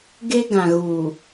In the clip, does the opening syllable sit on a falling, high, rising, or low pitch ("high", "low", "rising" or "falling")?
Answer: high